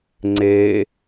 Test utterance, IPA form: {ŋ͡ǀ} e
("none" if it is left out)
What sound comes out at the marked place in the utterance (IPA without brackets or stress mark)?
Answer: ŋ͡ǀ